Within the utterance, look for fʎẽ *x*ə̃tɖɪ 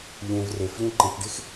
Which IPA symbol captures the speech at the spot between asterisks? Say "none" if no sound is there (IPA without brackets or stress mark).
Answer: ǃ